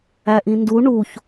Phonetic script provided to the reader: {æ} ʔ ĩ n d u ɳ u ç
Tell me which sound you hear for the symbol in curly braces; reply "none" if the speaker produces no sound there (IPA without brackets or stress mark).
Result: æ